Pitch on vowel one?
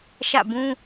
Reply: falling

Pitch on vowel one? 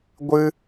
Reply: high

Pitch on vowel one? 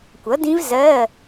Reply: rising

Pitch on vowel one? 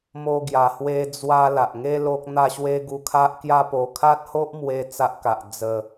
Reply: high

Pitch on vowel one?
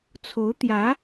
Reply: rising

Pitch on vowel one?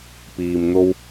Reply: low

